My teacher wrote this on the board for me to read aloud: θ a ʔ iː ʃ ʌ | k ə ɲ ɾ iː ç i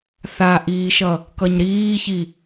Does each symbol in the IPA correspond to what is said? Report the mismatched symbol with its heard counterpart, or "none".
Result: ə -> ʌ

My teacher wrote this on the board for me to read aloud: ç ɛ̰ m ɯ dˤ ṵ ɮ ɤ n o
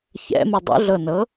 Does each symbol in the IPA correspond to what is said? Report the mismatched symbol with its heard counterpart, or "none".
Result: o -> ɤ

